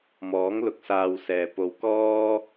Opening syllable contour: rising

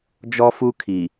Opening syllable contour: high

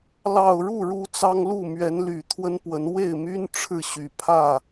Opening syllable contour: low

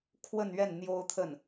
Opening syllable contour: falling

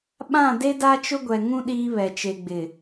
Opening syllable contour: falling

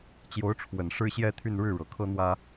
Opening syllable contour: rising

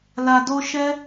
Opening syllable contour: low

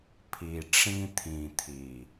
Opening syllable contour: low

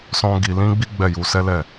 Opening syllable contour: high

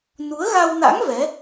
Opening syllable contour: rising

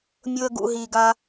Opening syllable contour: low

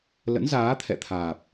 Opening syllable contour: rising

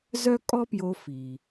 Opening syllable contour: high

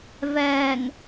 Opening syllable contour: low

